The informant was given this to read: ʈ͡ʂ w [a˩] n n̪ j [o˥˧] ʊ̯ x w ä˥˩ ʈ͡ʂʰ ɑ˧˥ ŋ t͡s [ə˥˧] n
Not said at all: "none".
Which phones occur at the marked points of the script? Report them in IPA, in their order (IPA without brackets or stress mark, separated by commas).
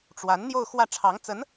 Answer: a˧˥, o˥˧, ə˧˥